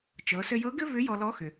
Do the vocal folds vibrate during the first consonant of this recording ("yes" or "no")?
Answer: no